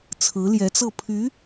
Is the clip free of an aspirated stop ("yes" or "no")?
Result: no